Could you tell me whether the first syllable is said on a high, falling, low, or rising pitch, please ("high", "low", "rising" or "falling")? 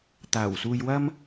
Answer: low